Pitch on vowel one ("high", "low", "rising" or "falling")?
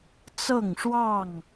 falling